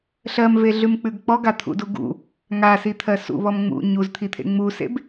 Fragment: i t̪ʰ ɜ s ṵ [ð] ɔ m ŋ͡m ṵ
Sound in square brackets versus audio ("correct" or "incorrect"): incorrect